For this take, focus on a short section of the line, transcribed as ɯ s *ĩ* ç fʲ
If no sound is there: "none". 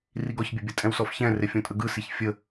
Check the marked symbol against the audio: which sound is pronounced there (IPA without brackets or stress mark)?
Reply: i